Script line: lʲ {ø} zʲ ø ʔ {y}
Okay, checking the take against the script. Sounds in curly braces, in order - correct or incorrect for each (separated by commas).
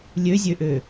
correct, incorrect